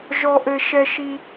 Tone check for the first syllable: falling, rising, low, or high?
high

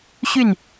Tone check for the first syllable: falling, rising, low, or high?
falling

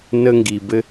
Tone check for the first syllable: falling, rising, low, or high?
high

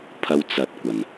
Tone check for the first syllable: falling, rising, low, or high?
high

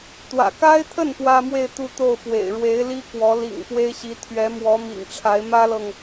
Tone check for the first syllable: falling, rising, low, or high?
low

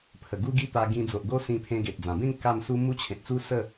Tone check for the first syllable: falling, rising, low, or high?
low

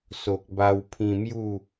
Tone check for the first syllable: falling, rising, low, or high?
low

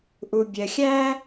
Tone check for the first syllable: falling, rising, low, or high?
low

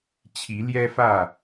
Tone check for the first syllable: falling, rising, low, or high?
rising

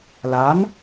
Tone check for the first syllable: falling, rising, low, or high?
rising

